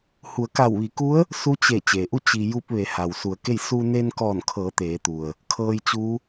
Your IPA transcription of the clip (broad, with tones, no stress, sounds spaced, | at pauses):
h u˩˧ ə̯ k a˧˩ w ʋ i˩˧ k u˧˥ ə̯ | s u˧˥ t͡ɕ e˧˩ t͡ɕ eː˩ ʔ u˥˨ t͡ɕ i˩ j u˧ p̚ ʋ e˩˧ h a˩ w s u˩˧ ə̯ k e˥˨ j s u˧ n eː˧ n k ɔː˧˩ n kʰ ɤː˩˧ t̪ eː˩˧ t̪ u˩ ə̯ | kʰ ɤː˧ j t͡ɕ u˧˥